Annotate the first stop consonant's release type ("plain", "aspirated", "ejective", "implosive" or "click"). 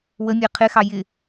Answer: aspirated